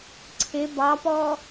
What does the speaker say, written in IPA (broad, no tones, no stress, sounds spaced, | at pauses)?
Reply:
ǀʰ ɪ b ɑ p ɔ